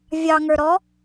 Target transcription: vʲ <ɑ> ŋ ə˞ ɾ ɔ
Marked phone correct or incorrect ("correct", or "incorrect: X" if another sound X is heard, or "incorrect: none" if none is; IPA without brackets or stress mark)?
correct